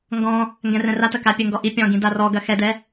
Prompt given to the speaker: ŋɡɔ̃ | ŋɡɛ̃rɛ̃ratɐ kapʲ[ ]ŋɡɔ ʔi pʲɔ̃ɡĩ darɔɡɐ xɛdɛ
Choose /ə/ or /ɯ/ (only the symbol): ə